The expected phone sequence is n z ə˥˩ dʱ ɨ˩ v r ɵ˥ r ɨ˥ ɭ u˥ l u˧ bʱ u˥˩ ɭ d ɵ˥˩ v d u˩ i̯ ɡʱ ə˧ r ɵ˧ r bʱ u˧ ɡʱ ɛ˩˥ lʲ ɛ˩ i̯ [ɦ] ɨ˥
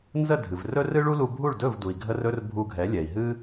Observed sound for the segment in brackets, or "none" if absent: ɦ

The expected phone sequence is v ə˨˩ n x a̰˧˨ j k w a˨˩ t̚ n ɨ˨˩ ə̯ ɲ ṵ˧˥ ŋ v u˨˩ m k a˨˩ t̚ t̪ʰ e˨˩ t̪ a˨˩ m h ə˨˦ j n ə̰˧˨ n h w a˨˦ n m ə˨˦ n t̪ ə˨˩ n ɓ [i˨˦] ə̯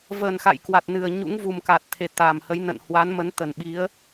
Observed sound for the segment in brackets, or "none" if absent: i˨˦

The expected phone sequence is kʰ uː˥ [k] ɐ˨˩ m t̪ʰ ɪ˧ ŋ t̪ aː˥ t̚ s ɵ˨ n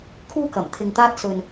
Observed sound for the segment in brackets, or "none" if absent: k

